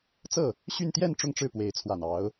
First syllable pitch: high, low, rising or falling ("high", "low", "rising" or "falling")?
falling